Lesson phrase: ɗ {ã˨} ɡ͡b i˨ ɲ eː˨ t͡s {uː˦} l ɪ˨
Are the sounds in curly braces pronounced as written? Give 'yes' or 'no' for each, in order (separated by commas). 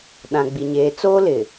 yes, no